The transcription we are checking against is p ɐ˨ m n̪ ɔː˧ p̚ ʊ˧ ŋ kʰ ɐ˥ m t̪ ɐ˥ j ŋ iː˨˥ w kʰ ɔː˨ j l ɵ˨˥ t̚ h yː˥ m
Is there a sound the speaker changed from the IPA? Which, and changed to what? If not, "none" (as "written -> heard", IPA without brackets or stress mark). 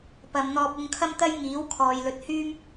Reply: none